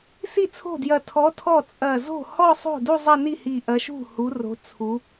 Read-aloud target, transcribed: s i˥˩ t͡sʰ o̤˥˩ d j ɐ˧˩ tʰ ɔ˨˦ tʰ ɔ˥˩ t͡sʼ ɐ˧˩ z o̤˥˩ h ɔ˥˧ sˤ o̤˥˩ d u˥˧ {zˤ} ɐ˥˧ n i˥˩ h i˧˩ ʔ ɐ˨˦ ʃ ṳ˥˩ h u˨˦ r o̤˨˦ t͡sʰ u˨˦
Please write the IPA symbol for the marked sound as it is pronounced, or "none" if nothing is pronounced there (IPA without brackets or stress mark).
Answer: zˤ